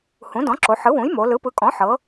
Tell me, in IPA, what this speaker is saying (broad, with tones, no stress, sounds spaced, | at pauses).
h ũ˩˥ d ɔ̃˩˥ ǁ o˩˧ ħ ɯ˩˥ w ũ˩˥ j m o˩˧ l ɯ˩˥ p ɯ˩˥ kʼ ɔ̃˩˥ ħ ɤ˩˧